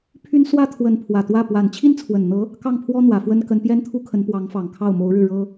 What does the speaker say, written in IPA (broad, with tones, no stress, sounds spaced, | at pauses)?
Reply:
pʰ y˥ n s w ä˥ t̪ʰ w ə˧˥ n pʰ w ä˨˩ t̪ w ä˥˩ p w a˨˩ n t͡ɕʰ i˥ n t͡sʰ w ə˨˩ n n̪ ɤ˧˥ | k ɑ˥˩ ŋ pʰ w ɔ˥ n̪ w ä˨˩ f w ə˥ n k ə˧˥ n p j ɛ˥ n t̪ʰ u˥ kʰ ə˧˥ n p w ɑ˧˥ ŋ f ɑ˨˩ ŋ kʰ ɑ˥˩ ʊ̯ m o˧˥ ʊ̯ ɻ ɻ̩˥˩ ɻ ɤ˥